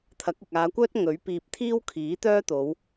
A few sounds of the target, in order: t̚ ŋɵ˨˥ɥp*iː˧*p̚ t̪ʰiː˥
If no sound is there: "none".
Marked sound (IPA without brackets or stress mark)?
iː˧